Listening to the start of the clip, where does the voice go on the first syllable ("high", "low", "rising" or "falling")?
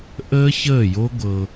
high